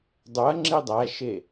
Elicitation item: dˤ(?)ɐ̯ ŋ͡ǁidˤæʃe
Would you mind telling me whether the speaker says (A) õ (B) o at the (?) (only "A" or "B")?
B